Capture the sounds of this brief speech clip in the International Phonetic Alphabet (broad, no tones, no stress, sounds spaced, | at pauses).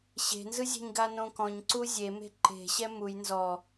ɕ e̤ n z ɯ zʲ e̤ ɲ ɡ a n õ k ɔ̃ ɲ ǀ u zʲ e m e̤ ǃ e̤ ɕ ɛ m u j n z ɔ